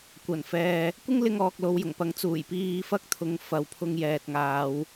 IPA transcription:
kʷ ɐ˨˩ n f ɛː˨ | kʷ ɪ˥ ŋ l ɪ˧ ŋ ɔː˨ k̚ l o˨˧ w j ʊ˨˩ ŋ p ɐ˨˥ ŋ t͡s uː˨˩ j p iː˧ f ɐ˥ k̚ t̪ʰ ʊ˨˧ ŋ f ɐ˨ w pʰ ʊ˧ ŋ j ɛː˨ t̚ ŋ aː˨˧ w

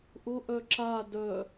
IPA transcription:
ʔ ʊ ʔ œ ǁ a d œ

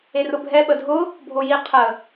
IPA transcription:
e r ʊ bʱ ɛ ɓ ə dʱ ʊ | bʱ o j i qʰ ə

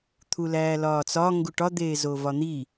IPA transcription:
t̪ʰ u l æː l ɒː t͡s ɒ ŋ ɡ u ʈ ɒ d̪ eː z o v ɒ n̪ i

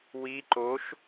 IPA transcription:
w i ǃ o ʃ

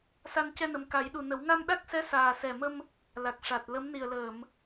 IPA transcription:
s a˧ n c ɛ˧ n ə˨˩ m k a˨˩˦ j ɗ u˨˩ n ə˨˩˦ w ŋ a˧ m ɗ a˦˥ k̚ s ɛ˧˥ s aː˨˩ s ɛ˨˩ m ə˧ m | l a˨˩ k̚ ʂ a˨˩ t̚ l ə˧˥ m n i˨˩ ə̯ l əː˨˩˨ m

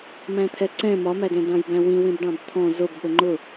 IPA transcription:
m æ̃ t̪ʰ ɛ ǀ ɛ̃ m ɒ m æ d ɛ̃ d ɑ̃ j b æ̃ w ĩ w ĩ b ɖ ɑ̃ b t̪ʰ ɔ̃ z ʊ b ɠ ə ŋ͡ǃ ʊ

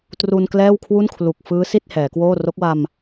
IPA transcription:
t r u˧ n k l ɛː˥˩ w kʰ w u˥˩ n kʰ l u˨˩ k̚ f ɯː˦˥ s i˥˩ t̚ h ɛː˩˦ k w oː˥˩ r o˦˥ k̚ w a˧ m

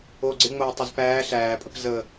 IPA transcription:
o ɡ͡ǀ ɪ ŋ͡m oː tˤ ə z p æː ɬ æː pʼ ə̤ p z ə

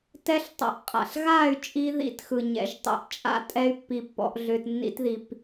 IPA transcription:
t ɛ˦ ɬ tˤ æ̰˧ ʔ qʼ a̰˨ ɬ ɣ a˦˨ y̯ t͡ʃʼ i˧ ð ḭ˧ t x ɯ˨ ɲ ɛ̰˧ ʒ tˤ ḭ˧ ʔ t͡ʃʼ a̰˦ tʼ ɛ˦ y̯ pː i˧ pː ɔ̰˧ ʔ ɮ ʏ˧ t nː ḭ˦ t ð i˧ p

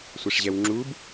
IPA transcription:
sʷ ɛ ʂ ʑ ɛ w ŋ͡ǁ u b

